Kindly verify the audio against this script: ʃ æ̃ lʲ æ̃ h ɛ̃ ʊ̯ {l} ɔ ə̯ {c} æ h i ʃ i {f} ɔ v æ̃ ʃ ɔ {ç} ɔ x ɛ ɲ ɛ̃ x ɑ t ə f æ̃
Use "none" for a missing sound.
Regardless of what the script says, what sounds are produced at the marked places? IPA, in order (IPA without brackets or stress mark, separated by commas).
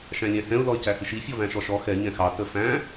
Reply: l, c, fʲ, ʃ